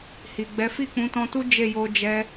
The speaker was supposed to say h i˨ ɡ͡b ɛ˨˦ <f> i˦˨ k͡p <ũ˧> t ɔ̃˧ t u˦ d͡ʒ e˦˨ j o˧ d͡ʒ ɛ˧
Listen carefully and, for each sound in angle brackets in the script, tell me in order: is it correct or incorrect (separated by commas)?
correct, incorrect